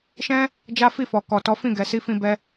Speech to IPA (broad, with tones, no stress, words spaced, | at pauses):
ʃɛ̃˦ | d͡ʒa˦fi˦˨fɔ˨ kɔ˨tɔ˨˦fĩ˦˨ ɡɛ˨si˧fĩ˧bɛ˧